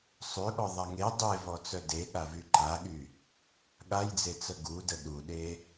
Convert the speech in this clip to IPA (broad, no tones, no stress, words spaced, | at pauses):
sˤøɠɔ ðˤaŋe dˤevɔ t͡sœde ɠavyǃaɠy | ɠajd͡zet͡sə ɡudə ɗuɗe